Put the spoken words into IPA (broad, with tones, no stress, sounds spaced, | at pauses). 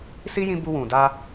s i˦ j ĩ˧ b u˧ w ũ˨ d a˧